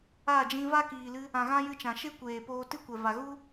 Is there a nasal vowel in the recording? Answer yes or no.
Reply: yes